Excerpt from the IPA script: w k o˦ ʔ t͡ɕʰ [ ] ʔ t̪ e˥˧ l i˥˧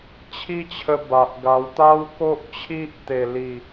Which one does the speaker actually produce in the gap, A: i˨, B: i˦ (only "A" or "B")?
B